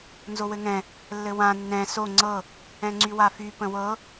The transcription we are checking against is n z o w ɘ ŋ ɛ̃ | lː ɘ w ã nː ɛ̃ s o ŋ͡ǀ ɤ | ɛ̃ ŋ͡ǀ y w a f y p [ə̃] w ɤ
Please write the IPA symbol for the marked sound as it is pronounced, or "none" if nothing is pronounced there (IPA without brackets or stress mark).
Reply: ə̃